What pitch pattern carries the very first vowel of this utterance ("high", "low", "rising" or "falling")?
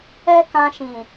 high